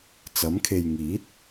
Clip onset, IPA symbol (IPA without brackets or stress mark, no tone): t͡s